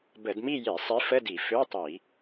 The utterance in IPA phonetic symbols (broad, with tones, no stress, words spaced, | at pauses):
bə˧˩˧dmi˥˧je˧˩˧sˤi˨˥ fə˧˥˧di˧˩˧ fø˧˥˧tˤi˧˩˧